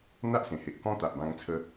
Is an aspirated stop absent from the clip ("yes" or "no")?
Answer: no